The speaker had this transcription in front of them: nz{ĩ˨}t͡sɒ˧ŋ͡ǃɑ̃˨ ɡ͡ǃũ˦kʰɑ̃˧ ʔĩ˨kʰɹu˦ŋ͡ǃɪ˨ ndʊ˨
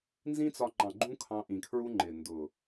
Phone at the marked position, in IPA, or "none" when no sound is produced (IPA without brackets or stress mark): ĩ˦